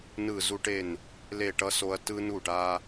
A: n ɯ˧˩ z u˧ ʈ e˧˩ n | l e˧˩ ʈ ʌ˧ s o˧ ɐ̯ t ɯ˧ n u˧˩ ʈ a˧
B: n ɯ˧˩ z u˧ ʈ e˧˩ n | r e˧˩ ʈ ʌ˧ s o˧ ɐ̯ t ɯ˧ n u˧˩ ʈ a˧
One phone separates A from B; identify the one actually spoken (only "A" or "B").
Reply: A